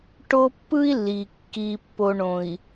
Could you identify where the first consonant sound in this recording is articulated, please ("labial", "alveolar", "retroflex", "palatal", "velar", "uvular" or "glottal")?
retroflex